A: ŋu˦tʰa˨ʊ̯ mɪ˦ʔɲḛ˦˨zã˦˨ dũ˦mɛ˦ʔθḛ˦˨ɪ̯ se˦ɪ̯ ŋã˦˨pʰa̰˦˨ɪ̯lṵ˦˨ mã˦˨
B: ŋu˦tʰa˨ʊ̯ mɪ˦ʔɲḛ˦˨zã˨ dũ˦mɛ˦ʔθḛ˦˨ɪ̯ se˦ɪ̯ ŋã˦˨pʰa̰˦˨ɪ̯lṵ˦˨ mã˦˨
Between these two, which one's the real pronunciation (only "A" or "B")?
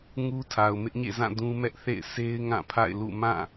A